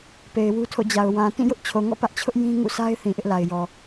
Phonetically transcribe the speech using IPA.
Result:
p e˨ ɪ̯ w u˦ tʰ o̰˦˨ d͡ʑ a˨ ʊ̯ w ã˨ t ĩ˦˨ j ʊ˦ ʔ t͡ɕʰ o˨ ŋ ɔ̰˦˨ p ä˦ ʔ t͡ɕʰ ʊ˦ ʔ j ĩ˦ ŋ ṵ˦˨ s a˦ ɪ̯ θ ĩ˨ ʔ ɪ˦ ʔ l a˨ ɪ̯ j ɔ˨

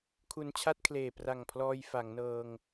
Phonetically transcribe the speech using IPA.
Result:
kʰ u˧ n t͡ɕʰ a˥˩ t̚ kʰ l eː˨˩ p r a˨˩ ŋ pʰ l ɔː˧ j f a˩˦ ŋ n ɤː˧ ŋ

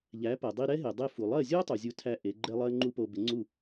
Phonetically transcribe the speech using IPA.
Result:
ʎ æ˩˥ p ɜ˩ dˤ i˧ ɾ ɛ˥ ɦ e˩ dˤ e˧ f u˩ lˠ ɜ˥˩ zʲ o˥ tˤ u˩ zʲ u˧ tʰ æ˧ ʔ e˩˥ ɡ͡ǃ ɛ˥ lˠ ɜ˥ ŋ͡ǃ u˥ p o˧ b ɪ˩˥ ŋ͡ǀ u˥˩

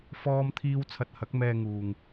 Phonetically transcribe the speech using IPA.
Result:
f ɔː˥ m t̪ʰ iː˥ w t͡sʰ ɐ˧ t̚ h ɐ˨˥ k̚ m ɛː˧ ŋ uː˨ ŋ

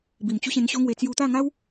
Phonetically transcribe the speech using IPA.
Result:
b i˨˩ m t͡ɕ u˦ ɕ ẽ˧ n ɕ o˦ ŋ w e˧ t͡s j u˧ t̪ a˥˧ ŋ a˦ w

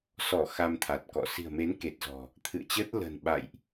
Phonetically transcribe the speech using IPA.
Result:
s ɔ˧˩ x a˧ m t̪ʰ a˨˩ t̚ k ɔ̰˧˨ s i̤˨˩ ə̯ m e˨˦ n k e˨˩ t̚ z ɔ̤˨˩ | t̪ʰ ɨ̰˧˨ ə̯ t͡ɕ əː˦˥ t̚ l ə̤˨˩ n ɓ a̰˧˨ j ʔ

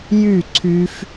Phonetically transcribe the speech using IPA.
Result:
j y ǀʰ y f

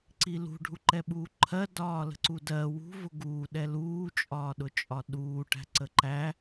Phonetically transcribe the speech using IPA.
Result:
ǀ i l ṳ ɖʱ u ǃ ɛ ɓ uː ǃʰ ɜ d ɒː l ə̤ ǀ u d ɜ w ṳ v ʊ ɡ uː ɗ ɛ l uː t͡ʃʼ ɒː ɗ ʊ t͡ʃʼ ɒ ɗ uː ʈ æ̤ ǀ ə ǃ æ

